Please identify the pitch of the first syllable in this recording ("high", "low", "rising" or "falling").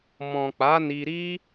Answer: low